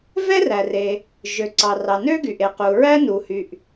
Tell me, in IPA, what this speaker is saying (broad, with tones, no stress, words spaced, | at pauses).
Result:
vɛ˥ræ˩re˩ | ʒø˩ǀɑ˩rɑ˩ nø˥ɡy˩ʔe˩ qu˩ɹæ˥nu˩hy˩ʔ